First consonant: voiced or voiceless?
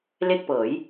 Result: voiced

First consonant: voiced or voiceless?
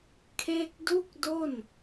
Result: voiceless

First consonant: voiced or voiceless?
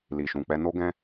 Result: voiced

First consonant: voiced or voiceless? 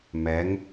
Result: voiced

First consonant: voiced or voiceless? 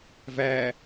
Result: voiced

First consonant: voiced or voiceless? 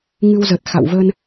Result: voiced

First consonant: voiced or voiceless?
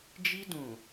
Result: voiced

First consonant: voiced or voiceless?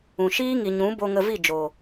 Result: voiceless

